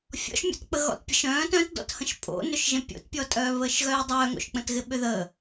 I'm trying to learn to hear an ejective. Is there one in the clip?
yes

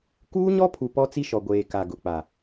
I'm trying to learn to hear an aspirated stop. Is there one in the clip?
yes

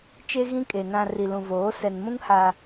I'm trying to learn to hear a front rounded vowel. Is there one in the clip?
no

